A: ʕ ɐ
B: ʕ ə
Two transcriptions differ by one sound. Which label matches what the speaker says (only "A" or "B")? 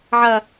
A